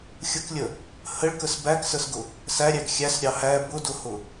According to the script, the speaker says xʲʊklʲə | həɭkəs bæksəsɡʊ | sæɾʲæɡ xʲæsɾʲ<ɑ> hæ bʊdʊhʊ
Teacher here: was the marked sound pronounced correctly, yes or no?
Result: yes